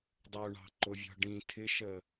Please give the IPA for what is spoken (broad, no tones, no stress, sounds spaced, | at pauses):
dˤ u ɳ ɑ̤ ǃ ʊ vʲ ɔ̤ ɖ ĩ tʰ ɪ ʃ ə